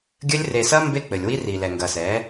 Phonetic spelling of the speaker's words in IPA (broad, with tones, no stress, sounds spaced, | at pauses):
ɡʲ ɘ˦ lʲ r e˨ s ɐ˦ m b e˦ k͡p ɘ˨ lʲ w i˦ r i˨ l ɛ˨ ŋ ɡ ɐ˨ s ɛ˨˦